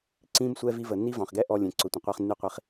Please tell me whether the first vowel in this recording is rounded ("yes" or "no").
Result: no